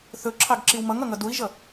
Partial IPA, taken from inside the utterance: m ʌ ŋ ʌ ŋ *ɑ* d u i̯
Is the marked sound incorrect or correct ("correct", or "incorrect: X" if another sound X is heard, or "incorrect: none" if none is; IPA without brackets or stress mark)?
incorrect: ʌ